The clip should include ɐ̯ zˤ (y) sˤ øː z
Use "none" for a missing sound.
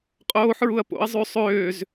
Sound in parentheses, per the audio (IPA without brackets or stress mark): y